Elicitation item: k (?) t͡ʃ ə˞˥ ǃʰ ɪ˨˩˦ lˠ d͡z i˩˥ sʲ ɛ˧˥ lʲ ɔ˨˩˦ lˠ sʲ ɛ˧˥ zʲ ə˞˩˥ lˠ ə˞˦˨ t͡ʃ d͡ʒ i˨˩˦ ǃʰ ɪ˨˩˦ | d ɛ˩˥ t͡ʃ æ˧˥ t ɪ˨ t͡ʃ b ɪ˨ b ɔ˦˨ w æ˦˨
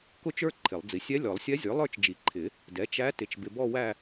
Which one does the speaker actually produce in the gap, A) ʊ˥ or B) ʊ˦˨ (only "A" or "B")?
A